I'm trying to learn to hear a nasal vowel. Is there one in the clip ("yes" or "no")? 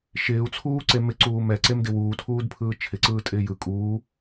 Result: no